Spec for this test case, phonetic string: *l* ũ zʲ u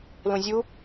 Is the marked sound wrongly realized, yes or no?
no